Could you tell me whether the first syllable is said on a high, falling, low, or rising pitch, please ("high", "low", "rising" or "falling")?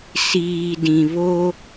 low